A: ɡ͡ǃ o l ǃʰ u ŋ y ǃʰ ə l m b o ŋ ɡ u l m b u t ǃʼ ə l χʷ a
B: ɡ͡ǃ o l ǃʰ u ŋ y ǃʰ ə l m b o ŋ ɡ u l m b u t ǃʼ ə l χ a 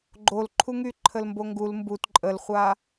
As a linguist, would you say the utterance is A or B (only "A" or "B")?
A